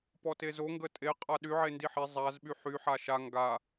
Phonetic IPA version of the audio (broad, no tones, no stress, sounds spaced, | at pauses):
p ɔ t e z o ŋ ɡ ə tʼ e qʼ a ɗ y ʕ e n d i ħ e zˤ a z ɓ y ħ y ħ a ʃ a ŋ ɡ a